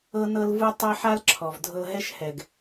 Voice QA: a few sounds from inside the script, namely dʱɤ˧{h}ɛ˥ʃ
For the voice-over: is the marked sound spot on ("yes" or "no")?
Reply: no